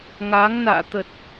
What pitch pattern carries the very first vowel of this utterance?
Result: rising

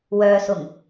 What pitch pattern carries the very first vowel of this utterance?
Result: low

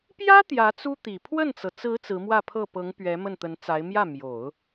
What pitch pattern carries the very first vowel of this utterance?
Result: high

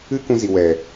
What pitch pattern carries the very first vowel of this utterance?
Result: high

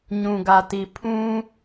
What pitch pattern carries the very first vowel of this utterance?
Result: low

